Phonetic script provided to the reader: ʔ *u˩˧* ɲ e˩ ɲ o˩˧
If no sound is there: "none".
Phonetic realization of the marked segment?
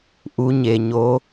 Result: u˩˧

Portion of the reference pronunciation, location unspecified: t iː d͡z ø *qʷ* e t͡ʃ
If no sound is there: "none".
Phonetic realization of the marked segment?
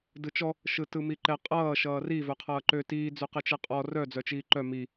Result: q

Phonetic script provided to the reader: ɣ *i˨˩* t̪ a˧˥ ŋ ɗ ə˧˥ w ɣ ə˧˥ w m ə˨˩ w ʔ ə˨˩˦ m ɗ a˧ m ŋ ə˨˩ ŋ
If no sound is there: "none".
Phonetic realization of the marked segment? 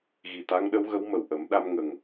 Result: i˨˩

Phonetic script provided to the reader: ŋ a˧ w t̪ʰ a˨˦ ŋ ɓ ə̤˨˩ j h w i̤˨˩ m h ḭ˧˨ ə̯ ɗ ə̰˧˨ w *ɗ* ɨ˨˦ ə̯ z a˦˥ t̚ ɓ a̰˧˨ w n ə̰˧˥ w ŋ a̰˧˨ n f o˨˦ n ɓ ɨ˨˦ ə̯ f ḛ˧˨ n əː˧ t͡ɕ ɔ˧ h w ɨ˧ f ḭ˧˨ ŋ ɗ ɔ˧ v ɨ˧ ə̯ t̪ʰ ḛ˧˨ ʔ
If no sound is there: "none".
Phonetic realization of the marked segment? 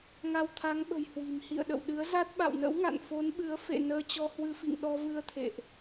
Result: ɗ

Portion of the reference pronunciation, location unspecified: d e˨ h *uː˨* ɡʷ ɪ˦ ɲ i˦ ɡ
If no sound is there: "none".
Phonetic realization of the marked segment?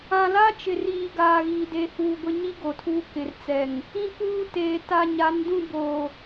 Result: uː˨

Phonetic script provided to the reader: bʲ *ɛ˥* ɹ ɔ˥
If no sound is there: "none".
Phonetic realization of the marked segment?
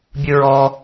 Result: ɨ˥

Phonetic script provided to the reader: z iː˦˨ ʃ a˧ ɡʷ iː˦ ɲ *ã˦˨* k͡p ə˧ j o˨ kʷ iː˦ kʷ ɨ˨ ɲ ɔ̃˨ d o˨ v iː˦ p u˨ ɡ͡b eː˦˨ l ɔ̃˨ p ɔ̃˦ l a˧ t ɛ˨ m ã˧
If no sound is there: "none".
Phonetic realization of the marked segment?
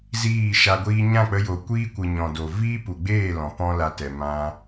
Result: ã˦˨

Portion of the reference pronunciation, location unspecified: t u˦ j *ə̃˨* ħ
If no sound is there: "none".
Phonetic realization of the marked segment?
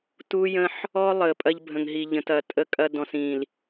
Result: ə̃˦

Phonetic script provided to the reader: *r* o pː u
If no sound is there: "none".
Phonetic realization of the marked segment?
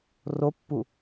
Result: r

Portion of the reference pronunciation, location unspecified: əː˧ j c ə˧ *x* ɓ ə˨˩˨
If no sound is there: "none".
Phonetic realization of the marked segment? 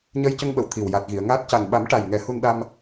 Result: ŋ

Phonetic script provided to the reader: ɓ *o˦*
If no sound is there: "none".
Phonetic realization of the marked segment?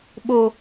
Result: o˦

